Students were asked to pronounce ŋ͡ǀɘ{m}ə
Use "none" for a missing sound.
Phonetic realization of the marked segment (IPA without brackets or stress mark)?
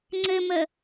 m